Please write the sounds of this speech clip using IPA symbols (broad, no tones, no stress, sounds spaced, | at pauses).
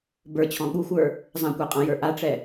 b ə˞ t͡ɕʰ ɔ̃ ɠ u xʷ ə˞ | zˤ ã kʷ a qʼ ã j ə˞ ʔ a ʈ͡ʂ ɛ